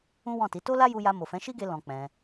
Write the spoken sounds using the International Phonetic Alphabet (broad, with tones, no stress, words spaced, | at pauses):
ũ˦wɔ̃˦˨ti˨˦ to˦la˦ju˧ja˧ mo˨fɛ̃˨˦ʃi˦ɡe˧ lɔ̃˧k͡pɛ̃˧